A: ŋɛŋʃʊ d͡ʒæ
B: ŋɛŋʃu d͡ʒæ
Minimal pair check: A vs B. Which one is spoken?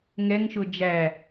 A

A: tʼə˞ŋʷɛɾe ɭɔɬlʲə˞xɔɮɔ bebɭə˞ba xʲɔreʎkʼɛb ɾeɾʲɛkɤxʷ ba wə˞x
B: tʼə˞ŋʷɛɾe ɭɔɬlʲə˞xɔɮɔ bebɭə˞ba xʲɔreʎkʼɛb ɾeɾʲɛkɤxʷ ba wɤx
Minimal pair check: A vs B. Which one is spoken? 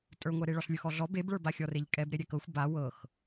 B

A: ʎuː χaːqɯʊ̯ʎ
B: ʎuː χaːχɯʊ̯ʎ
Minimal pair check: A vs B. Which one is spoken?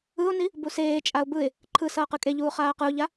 A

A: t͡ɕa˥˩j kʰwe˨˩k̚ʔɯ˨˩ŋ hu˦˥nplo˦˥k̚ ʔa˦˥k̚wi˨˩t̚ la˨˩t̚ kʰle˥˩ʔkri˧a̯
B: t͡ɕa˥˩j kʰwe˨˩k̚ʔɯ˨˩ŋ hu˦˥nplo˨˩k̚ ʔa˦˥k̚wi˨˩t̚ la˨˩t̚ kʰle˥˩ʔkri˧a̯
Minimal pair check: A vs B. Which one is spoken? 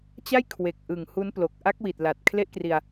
B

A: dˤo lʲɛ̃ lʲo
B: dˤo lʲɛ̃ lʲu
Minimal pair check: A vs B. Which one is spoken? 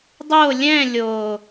A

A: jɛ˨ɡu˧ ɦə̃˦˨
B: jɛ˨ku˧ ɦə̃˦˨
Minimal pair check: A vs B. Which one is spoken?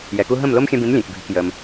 B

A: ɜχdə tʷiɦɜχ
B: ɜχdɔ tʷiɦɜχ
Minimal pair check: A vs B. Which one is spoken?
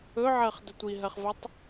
A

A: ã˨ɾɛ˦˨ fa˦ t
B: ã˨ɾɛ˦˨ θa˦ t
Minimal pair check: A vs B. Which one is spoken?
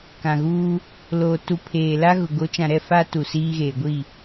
A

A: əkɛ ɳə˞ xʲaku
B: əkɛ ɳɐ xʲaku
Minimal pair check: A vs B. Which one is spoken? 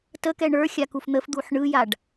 A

